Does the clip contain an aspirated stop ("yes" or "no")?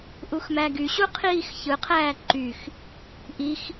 yes